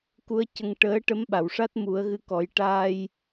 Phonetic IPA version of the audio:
k u˧˥ ə̯ c ə˧ ŋ ʈ əː˧˥ ʈ ə˧˥ m ɓ a˨˩˨ w ʂ a˦˥ t̚ m u˨˩˦ ə̯ ɣ ɨ˧˥ k ɔ˨˩˦ j ʈ aː˧ j

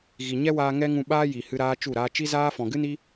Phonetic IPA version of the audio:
ɣ i˨ ɲ ɛ˦ w aː˧ ŋ ɛ˦ ŋ ũ˧ ɓ aː˦ j i˨ h ɨ˧ ɾ aː˦ t͡ʃ u˦˨ ɾ aː˧ t͡ʃ i˦ z aː˦ f ɔ̃˨ ɡ ɨ˦ n i˦

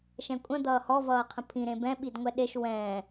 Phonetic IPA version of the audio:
ʃ ɛ̃ kʷʼ ə̃ d̪ ʌː h ɔ v ʌː qʰ ə̃ pʰ ĩ ɾ ẽ b ɛ̃ ɓ i d ŋʷ ɛ ɗ e ʃ w ɛ̃ː

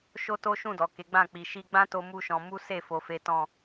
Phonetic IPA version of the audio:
ʃ o˦ t o˦ ʃ ũ˦˨ d ɔ˨ k e˨˦ ɡ͡b ã˦˨ k͡p i˨ ʃ i˧ ɡ͡b ã˦ t o˦ m u˦ ʃ ɔ̃˧ m u˦ s e˦˨ f o˧ f e˦ t ɔ̃˦˨

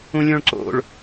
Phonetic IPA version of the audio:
ũ lʲ õ ɭ ǀ o̰ ɭ

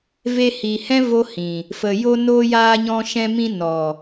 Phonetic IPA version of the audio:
v e˧ h i˨ h ɛ̃˦ v o˦ h ĩ˨ | f ə˨ j o˧ n oː˧ j aː˧ ɲ ɔ̃˧ ʃ ɛ̃˧ m ĩ˧ n ɔ˨

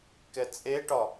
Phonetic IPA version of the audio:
k ɛ t͡sʼ e ʈ ɒ

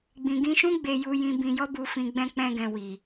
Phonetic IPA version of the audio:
ɡ͡b ĩ˨ ɡ ĩ˧ ʃ ũ˦ ɡ͡b e˧ j u˧ j ĩ˧ b ĩ˧ j ɔ˦ b u˧ f ĩ˧ ɡ͡b ɛ̃˧ k͡p ɛ̃˧ ɡ ɛ̃˨ w i˨

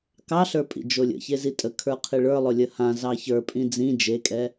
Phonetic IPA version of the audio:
k ɑ ɬ ə˞ pʼ ḭ d͡ʒ o lʲ ə̰ ç e z i tʼ ə kʰ ə˞ qʰ i ɭ ə˞ lˠ o lʲ ə h ã z ɑ ç ə˞ pʼ ĩ d͡z ĩ d͡ʒ e kʼ ɛ

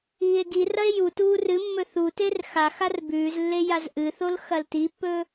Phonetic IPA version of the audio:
iː e̯ ɡ i r ɐ e̯ j u t uː r ɨ mː ɵ θ u t e r x a x a r b ʉː z lː e j a z ʔ ɨ θ o l x ɐ l t i pː ɵː

